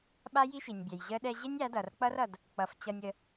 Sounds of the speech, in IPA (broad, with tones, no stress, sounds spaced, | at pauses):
ɓ a˦ j i˦ ʃ i˨ nʲ bʲ ɛ˨ j ʑ ə˦ ɗ ɛ˧ ʑ e˦ nʲ a˨˦ d ʌ˨ r k͡p ʌ˦ r ʌ˧ d | k͡p ʌ˨ f t͡ɕ ʌ˧ nʲ ə˧